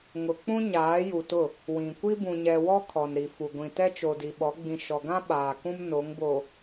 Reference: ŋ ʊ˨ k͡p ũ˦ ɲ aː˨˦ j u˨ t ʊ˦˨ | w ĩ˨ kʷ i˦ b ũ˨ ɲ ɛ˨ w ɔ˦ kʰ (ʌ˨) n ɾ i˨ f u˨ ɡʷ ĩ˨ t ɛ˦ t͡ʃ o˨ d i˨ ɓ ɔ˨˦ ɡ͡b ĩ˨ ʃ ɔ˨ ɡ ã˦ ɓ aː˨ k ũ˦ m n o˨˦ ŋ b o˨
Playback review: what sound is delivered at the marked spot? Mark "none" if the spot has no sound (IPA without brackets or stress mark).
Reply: ɔ˨